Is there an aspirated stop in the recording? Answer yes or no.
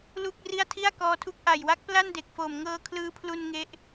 yes